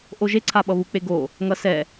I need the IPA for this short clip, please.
ʔ o ʒ e ǀʰ a ɓ ʌ β u k͡p e ɡ o | ŋ ʌ s ɛ

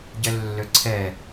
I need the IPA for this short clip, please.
ɟ ɛ lː ø ǀʰ ɛ

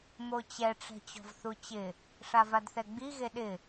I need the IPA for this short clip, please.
m o t͡ɕ ɛ ʈ͡ʂ ɛ̤ t͡ɕ ɔ̤ v θ u t͡ɕ ɪ | ʂ a v a d θ ɛ ɡ͡b i ɣ e ɗ ɪ

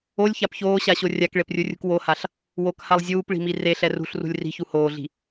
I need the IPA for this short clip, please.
o lʲ ç a p ç oː ɕ a ɕ o rʲ a k ɭ e p rʲ u rʲ ṳ k w o h a ɬ | w o k h a lˠ zʲ uː p ɭ i̤ m i r e ɬ ɛ r ṳ ɬ r ṳ lʲ r i̤ ç u h oː ɮ i̤

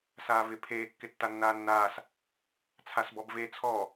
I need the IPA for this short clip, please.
s aː v ɪ pʰ eː kː ɪ tː a nː aː nː aː s | t͡sʰ a s b ɔ b v e t͡sʰ ɔ

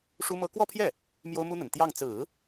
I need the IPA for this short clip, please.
ʂ u˥ m ɤ˥ k w ɔ˥˧ pʰ j ɛ˥˩ | m j o˥ ʊ̯ m u˥ n̪ ə˨˩ n t̪ j ɑ˥˩ ŋ t͡s ɹ̩˨˩˦

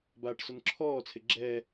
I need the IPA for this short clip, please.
b aː ʈ s ʊ n ǁʰ ɔː t͡sʰ ɪ ɡ͡ǁ ɛː

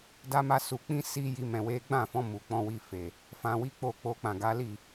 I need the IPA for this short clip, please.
d a˦ m a˦ s u˧ k͡p ĩ˦ s i˦ j i˦ m ɛ̃˧ w e˦ ɡ͡b ã˦˨ f ɔ̃˧ m u˨ k͡p ɔ̃˧ w i˧ f e˨ | f ã˧ w i˦ k͡p o˦˨ k͡p o˧ k͡p ã˨ ɡ a˨˦ l i˦˨

